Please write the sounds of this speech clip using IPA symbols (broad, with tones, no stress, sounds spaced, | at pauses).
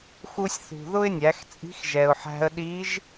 x u˧ sʲ θ ṳ˩ ð ʊ˥ ɪ̯ nʲ æ˩˧ x t͡sʼ i̤˧˥ x ʒ ɛ˩ ʊ̯ ħ æ̤˧ ə̯ ɗ i˧˥ ʒ